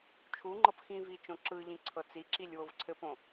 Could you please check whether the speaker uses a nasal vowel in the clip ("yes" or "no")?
yes